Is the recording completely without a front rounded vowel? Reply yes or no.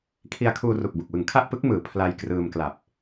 yes